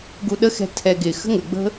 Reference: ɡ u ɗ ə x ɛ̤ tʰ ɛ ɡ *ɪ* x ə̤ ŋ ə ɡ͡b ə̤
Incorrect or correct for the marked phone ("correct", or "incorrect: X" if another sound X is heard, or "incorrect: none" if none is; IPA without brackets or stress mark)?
correct